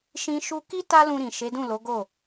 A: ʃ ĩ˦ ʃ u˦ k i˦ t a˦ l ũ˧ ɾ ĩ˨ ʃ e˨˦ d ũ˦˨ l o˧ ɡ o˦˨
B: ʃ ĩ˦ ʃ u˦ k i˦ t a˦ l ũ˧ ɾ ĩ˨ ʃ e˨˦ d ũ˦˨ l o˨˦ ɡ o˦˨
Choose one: B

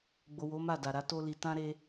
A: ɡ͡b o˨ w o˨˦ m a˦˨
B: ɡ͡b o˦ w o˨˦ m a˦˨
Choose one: A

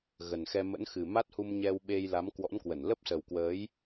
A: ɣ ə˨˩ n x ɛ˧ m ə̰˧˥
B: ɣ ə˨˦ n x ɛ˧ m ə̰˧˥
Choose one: A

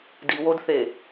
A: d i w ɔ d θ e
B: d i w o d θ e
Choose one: B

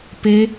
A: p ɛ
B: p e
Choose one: B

